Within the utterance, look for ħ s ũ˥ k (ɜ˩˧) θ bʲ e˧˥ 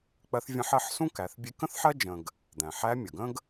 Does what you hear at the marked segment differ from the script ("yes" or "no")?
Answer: yes